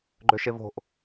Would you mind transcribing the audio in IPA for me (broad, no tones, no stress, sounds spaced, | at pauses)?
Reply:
ɡ͡ǃ ø ʃ e v o̤ ʔ